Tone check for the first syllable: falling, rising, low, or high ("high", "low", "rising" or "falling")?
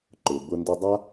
low